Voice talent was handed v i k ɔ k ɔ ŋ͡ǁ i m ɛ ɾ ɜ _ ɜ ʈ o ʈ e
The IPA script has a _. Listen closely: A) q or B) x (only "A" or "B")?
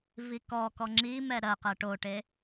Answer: A